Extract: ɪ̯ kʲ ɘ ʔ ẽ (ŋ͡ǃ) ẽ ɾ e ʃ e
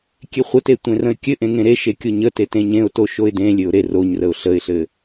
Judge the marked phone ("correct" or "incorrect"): incorrect